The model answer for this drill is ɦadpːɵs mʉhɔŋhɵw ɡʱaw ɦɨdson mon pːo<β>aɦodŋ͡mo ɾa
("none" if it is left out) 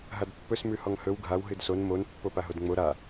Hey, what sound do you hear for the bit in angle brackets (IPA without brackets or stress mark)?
p